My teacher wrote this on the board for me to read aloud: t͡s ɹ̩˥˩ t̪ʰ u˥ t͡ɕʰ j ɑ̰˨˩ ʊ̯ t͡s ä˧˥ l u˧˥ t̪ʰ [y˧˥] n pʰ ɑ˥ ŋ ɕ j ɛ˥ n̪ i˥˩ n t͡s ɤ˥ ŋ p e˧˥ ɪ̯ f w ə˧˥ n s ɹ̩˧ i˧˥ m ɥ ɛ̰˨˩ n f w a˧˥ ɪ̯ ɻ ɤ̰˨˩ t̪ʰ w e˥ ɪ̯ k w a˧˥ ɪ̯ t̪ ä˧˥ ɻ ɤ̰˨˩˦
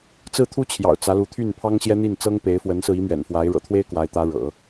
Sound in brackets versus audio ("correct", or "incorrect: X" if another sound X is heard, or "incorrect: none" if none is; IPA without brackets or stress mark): incorrect: y˥˩